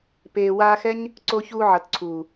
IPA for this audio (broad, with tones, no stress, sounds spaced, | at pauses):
p eː˨ w aː˧ x ɛ˦ ɲ | ǀ oː˧ ç uː˧ ʕ ʌ˨ t ǀʰ uː˨